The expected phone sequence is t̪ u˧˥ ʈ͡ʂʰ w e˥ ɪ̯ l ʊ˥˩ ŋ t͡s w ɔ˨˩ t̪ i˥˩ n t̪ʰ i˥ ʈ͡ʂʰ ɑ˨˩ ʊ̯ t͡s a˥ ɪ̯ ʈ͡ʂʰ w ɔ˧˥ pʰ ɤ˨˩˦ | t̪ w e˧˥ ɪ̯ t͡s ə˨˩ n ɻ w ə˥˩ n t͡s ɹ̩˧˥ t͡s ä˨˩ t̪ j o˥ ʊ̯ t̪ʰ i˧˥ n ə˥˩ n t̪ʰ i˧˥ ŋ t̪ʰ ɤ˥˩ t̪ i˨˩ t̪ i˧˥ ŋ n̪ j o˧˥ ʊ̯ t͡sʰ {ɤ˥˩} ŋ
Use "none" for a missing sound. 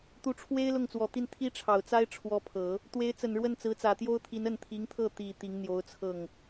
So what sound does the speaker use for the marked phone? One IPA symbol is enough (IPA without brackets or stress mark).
ɤ˥˩